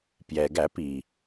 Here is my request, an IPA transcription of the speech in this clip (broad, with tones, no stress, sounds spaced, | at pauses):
p j ɛ˩ ɡ æ˧˩˧ p i˩